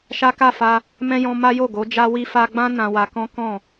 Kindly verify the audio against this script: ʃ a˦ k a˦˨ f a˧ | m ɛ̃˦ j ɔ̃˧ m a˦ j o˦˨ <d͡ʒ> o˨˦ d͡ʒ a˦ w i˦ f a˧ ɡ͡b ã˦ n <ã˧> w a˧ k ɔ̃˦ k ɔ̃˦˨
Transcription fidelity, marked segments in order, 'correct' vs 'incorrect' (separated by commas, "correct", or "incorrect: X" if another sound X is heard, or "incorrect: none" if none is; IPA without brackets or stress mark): incorrect: ɡ, correct